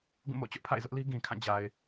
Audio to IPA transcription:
ɡ ũ˦˨ m o̰˦˨ t͡ɕ ʊ˦ ʔ pʰ a̰˦˨ ɪ̯ z ʊ˦ ʔ l i˦ ɡ ĩ˨ kʰ ã˦˨ d͡ʑ a˨ ɪ̯

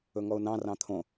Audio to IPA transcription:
ɵ ŋ ɔ ʊ̯ n ɑ̃ r ɑ̃ t̪ʰ õ

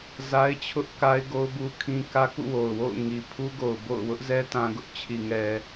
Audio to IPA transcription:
z a˦ ɪ̯ t͡ɕʰ ʊ˦ ʔ k a˦ ɪ̯ ɡ o˦ ʊ̯ b u˦ kʰ ĩ˦ k ä˦ k ṵ˦˨ w o˨ ʊ̯ w o̰˦˨ ʊ̯ ŋ i˨ pʰ u˦ ɡ o˨ ʊ̯ b o̰˦˨ ʊ̯ w ʊ˦ ʔ z ɛ˦ t ã˦ ɡ ʊ˦ ʔ t͡ɕʰ i˨ ŋ ɛ˨

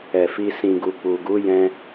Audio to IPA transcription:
ɛ˨ f i˧ s ĩ˨ ɡ u˨ k͡p u˨ ɡ u˨˦ j ɛ̃˧

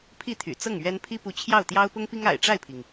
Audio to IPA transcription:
pʰ i˥˩ t̪ʰ y̰˨˩ t͡s ɤ˥˩ ŋ ɥ ɛ˥ n pʰ i˥ p u˧˥ t͡ɕʰ j ɑ˥˩ ʊ̯ t̪ j ɑ˥ ʊ̯ p ʊ˥ ŋ p i˥ ŋ a̰˨˩ ɪ̯ ʈ͡ʂ a˥˩ ɪ̯ pʰ i˩ ŋ

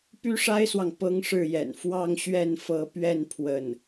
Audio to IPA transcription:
p y˥ ʂ a˥ ɪ̯ s w ɑ˨ ŋ p ɤ˥ ŋ ʂ ɻ̩˥˩ j ɛ̰˨˩ n f w ɑ˥˧ ŋ ɕ ɥ ɛ˥˩ n f ɤ˧˥ p ɥ ɛ˥˧ n pʰ w ə˥˩ n

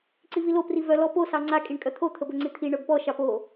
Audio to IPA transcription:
ǀ i v i l o p r i v œ l ɔ p o s ɑ ŋ͡ǀ a kʼ i ɳ kʼ œ t̪ʰ o t̪ʰ ə b ɵ ŋ͡ǀ i t̪ʰ i ɳ œ b p ɔ ʃ ɑ p o

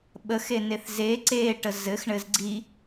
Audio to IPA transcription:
ɓ ə x e n e θ z e ǀ e ʈ ə z ɘ x ɳ ɘ z ɡ͡ǀ i

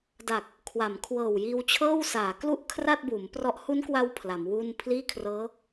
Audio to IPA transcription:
d a˨˩ k̚ | kʰ w a˩˦ m kʰ w ɤː˨˩ w j iː˧ w t͡ɕʰ ɤː˥˩ w s aː˩˦ k l u˥˩ ʔ kʰ r a˥˩ t̚ b uː˩˦ m p r ɔ˦˥ ʔ h u˦˥ n k w a˧ w pʰ l a˩˦ m w uː˥˩ n pʰ l iː˥˩ kʰ r ɤː˦˥

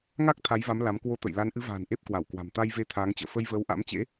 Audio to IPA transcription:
ŋ a˦˥ k̚ t̪ʰ a˨˦ j v a˨˦ m l a˨˦ m k w o˧ t̪ ə̰˧˨ j l a˨˦ n ʔ ɨ˨˦ v a̤ː˨˩ n ʔ e˦˥ p̚ k w a˧˩ w k w a̤˨˩ m t̪ a˧ j v e˧ t̪ʰ aː˨˦ ŋ t͡ɕ ə̰ː˧˨ f ə˧ j v əː˨˦ w ʔ a̰˧˥ m t͡ɕ ḛ˧˥

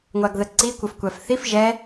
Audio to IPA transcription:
ŋʷ a ɡ ð ə ǀ i kʷ ə f kʷ æ f θ i f ʒ ɛ

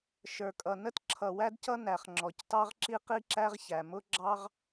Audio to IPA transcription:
ʃ ə˞˩ kʼ ʌ˩ n ə˥ t ǁʰ ʌ˩ w æ˥ d c ʌ˥ n æ˩ χ ŋ͡ǁ ɔ˩ c t ɑ˥ ʁ ǁ i˥ q i˥ ǁ æ˥ ʁ ç æ˩ m ʊ˥ ɡ͡ǁ ɑ˥ ʁ

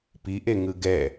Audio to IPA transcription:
p i ʔ e ŋ ɯ ɡ ɛ

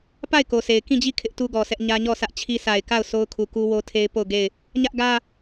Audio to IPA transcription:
p a˦˨ ɪ̯ k o˨ s e˨ ɪ̯ k ĩ˦˨ d͡ʑ i˦˨ kʰ ɪ˦ ʔ t u˦ ɡ ɔ˨ s ɛ˦ ʔ ɲ ä˦ ɲ ɔ˦˨ s ä˦ ʔ t͡ɕʰ i˦ s a˨ ɪ̯ k a˦˨ ʊ̯ s o˦ ʊ̯ kʰ u˨ k u˦ w o˦ tʰ e˦ ɪ̯ p o˦˨ ʊ̯ ɡ e˦˨ ɪ̯ | ɲ ä˦ ʔ ɡ ä˦

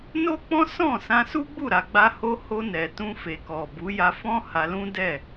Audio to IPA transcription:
n o˦ k͡p ɔ̃˦ s ɔ̃˦˨ s ã˧ s u˦ ɡ͡b u˦˨ ɾ a˨ ɡ͡b a˧ h o˧ h o˧ n ɛ˨ t ũ˧ f e˨ k ɔ˨ b u˨˦ j a˧ f ɔ̃˦ h a˧ l ũ˦ d ɛ˦˨

